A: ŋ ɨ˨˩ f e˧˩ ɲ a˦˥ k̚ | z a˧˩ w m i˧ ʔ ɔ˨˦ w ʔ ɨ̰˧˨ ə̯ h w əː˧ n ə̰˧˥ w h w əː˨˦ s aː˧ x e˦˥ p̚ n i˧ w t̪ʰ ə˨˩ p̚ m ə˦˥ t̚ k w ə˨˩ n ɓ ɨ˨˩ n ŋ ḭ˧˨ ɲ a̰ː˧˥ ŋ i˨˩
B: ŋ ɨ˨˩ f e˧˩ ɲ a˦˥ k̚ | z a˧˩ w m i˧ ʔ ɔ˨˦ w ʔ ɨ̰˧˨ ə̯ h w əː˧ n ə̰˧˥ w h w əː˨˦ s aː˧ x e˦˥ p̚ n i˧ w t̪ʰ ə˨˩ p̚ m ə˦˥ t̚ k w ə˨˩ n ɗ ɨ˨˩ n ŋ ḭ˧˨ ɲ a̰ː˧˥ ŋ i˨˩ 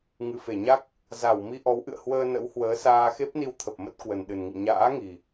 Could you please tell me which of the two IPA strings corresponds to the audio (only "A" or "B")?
B